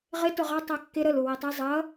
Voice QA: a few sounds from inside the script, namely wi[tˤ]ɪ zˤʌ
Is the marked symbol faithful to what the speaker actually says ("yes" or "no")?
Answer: yes